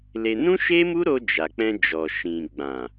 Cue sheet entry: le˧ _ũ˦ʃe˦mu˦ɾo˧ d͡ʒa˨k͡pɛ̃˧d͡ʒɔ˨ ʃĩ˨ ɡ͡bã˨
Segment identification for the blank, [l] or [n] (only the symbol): n